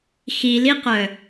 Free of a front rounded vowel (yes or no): no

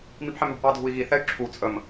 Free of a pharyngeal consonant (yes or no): no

